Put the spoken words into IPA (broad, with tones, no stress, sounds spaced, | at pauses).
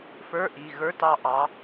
f ə˞˧˥˧ ʔ i˩˧˩ ɣ ə˞˧˥˧ t ɑ˦˨ ʔ ɑ˨˥